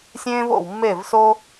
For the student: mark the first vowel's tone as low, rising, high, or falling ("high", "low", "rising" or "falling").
high